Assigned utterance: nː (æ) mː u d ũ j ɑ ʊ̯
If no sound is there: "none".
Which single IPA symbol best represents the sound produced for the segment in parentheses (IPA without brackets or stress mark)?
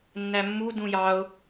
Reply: æ